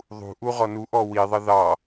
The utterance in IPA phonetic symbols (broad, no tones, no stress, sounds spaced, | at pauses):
ðˤ ṳ ʔ u ʁ ɔ n u ʔ ɔ w i ðˤ ə ð ɑ